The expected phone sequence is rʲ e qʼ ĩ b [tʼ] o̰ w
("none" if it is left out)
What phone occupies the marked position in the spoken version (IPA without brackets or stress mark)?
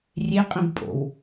pʼ